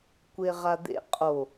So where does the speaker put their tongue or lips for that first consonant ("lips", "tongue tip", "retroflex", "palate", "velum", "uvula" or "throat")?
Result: velum